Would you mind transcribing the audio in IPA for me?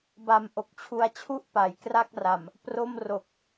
b a˨˩ m ʔ o˨˩ k̚ t͡ɕʰ u˧ a̯ t͡ɕʰ u˥˩ ʔ p a˩˦ j k r a˥˩ k̚ r a˨˩ m | p r o˥˩ m r o˨˩ k̚

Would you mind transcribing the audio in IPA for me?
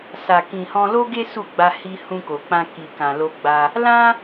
s a˨ k ĩ˨ h ɔ̃˧ l o˦ ɡ e˦ s u˦˨ ɡ͡b a˧ h i˧ h ũ˧ k o˨ k͡p ã˧ k i˨ k ã˨ l o˧ ɡ͡b a˧ | l ã˦

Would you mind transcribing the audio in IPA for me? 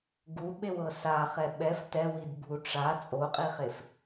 ɡ u ɓ e w ɤ s a χ ɛ ɓ ɛ f t ɛ w i d bʱ u ʈ͡ʂ a t͡sʼ o qʼ i χ e f

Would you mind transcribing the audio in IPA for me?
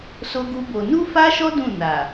s o˦ ɡ u˦ b o˧ n u˦ f a˦ ʃ ɔ˦ d ũ˦˨ n a˨

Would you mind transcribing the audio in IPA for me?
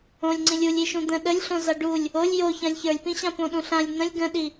õ lʲ ŋ͡ǀ ĩ lʲ u lʲ i ʃ ũ d̪ ə̃ ɗ ə lʲ ɬ õ z a ɖ u lʲ | o lʲ j o ç ã lʲ ç ə˞ lʲ p ĩ ɕ ã p õ ɗ ũ ɬ ã lʲ n̪ ə̃ lʲ ɡ ə̃ ɗ i

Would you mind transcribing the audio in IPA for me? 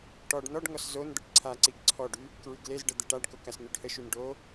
ʈ ɔ ɖ n ɔ ɖ ŋ ɔ s z o n d̪ ə ʈ ǀʰ a ǀ i ɡ ǀʰ ɔ ɖ y | k ɹ y ɡ l e z ɖ ə d̪ e ʈ a ɖ k o k a s n y ɖ h ə ʃ y n ɖ o

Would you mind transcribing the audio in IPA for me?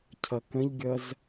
cʰ ʌ k ə̃ ʎ ɡʲ ʌ z

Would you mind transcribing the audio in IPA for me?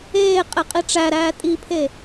eː qʼ e qʼ i ʈ͡ʂ æ ɾ æː tʼ i pʰ e

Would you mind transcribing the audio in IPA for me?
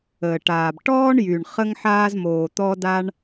əː˩ ʈ aː˩ b ʈ ɔː˥ ɳ j y˩ ɳ χ ə˥ ŋ ħ aː˥ z m oː˩ t̪ ɔ˥ d a˥ ɳ

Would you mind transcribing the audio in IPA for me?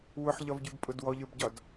w ʊ ħ ʎ ɒ v ɟ ʉ b pʼ ʊ d w ɔ ʎ ə˞ b ɟ ɒ d

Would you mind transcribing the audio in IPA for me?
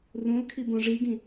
r ũ l kʰ i b õ ʐ i ɡ ĩ

